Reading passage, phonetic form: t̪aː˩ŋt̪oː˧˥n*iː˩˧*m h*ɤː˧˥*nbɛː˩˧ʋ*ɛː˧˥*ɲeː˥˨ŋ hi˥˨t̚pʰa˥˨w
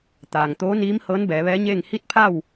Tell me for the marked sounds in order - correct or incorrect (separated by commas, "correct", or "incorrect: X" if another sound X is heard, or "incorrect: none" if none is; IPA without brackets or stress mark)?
incorrect: iː˧˥, correct, correct